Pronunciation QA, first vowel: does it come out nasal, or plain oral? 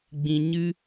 nasal